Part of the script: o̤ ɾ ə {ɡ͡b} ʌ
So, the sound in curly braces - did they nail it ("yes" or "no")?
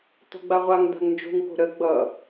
yes